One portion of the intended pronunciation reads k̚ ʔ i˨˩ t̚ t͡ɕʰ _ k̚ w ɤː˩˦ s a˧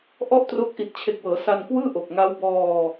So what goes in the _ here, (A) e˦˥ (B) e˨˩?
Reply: B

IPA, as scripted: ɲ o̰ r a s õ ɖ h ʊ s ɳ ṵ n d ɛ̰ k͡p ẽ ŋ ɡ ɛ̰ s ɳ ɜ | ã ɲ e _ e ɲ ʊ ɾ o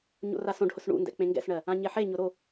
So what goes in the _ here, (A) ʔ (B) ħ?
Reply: B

